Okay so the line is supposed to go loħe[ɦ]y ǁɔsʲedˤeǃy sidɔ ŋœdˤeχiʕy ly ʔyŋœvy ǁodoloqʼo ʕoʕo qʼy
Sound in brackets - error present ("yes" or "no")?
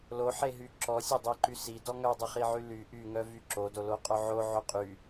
no